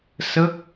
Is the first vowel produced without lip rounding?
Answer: yes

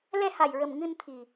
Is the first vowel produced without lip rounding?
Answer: yes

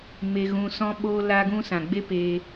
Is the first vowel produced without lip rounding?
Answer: yes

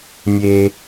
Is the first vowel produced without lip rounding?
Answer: yes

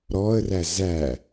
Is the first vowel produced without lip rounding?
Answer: no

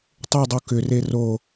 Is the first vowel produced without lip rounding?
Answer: no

